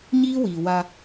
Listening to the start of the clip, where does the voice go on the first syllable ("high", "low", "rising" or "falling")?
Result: high